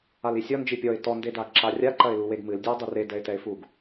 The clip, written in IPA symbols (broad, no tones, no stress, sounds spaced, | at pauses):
a l i sʲ ɔ n d͡ʒ i pʲ ɔ ɪ̯ t ɔ n d e d a ɡ ǁ a rʲ a ǃ ɐ ɪ̯ l u w e ɡ m ɨ l dʲ ɐ ɪ̯ dˤ ɨ r e d ɛ ɪ̯ t ɛ ɪ̯ f u ɡ